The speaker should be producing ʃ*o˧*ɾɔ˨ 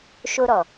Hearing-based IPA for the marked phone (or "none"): o˧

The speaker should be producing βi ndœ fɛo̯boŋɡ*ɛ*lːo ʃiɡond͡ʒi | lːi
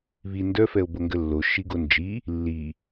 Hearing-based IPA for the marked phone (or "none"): ə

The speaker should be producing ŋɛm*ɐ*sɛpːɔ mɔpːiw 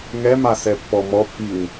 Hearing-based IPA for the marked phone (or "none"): a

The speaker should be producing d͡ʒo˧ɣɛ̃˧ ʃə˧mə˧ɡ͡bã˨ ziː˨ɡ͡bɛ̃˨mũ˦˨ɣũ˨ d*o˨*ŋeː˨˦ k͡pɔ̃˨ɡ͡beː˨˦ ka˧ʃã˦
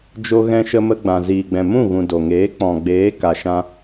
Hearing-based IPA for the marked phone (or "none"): o˨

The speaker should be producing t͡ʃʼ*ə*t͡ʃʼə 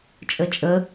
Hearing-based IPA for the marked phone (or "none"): ə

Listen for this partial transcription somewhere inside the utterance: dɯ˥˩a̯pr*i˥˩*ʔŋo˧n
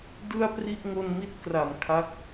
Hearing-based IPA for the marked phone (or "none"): i˥˩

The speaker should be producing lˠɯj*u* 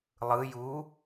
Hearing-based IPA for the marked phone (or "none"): u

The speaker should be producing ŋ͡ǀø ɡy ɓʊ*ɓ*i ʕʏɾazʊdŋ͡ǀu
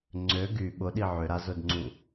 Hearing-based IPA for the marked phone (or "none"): ɗ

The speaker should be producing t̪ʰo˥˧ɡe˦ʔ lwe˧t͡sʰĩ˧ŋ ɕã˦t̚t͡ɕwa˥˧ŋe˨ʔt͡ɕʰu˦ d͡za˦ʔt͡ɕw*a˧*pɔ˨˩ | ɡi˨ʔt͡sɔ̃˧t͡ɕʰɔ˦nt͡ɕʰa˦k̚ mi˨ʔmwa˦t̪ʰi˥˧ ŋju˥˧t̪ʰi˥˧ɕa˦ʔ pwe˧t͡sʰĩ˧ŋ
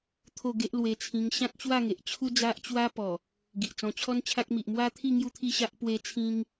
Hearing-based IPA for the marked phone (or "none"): a˦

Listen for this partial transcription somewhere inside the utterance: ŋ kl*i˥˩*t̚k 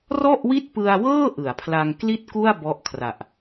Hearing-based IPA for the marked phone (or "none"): i˥˩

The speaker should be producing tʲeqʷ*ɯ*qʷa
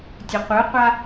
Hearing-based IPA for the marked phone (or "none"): ɯ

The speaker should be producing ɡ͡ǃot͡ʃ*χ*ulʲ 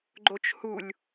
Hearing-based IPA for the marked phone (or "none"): h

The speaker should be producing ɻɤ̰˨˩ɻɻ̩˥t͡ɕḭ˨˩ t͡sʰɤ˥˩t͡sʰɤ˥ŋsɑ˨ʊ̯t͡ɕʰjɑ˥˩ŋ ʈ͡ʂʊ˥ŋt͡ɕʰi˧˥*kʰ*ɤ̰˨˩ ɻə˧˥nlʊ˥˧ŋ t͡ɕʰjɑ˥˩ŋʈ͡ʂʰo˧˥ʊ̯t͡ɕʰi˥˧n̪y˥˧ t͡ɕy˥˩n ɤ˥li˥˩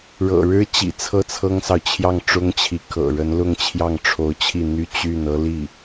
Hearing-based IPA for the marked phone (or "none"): kʰ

